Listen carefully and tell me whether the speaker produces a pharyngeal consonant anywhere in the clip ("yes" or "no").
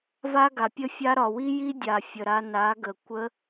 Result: no